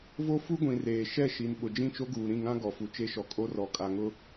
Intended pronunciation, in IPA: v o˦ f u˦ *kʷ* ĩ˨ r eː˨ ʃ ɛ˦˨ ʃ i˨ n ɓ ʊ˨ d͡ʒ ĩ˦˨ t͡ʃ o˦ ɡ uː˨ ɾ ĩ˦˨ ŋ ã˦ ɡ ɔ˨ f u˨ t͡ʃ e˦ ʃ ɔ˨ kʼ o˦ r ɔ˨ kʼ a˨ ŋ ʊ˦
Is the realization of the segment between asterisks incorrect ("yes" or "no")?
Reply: yes